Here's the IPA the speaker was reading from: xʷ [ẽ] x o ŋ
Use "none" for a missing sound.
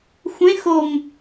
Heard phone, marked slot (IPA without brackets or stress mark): ẽ